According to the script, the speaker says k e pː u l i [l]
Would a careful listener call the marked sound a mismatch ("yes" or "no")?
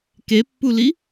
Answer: yes